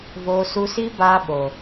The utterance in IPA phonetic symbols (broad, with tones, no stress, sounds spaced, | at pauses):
v o˧ s u˧ s i˦ b aː˧ ɓ o˨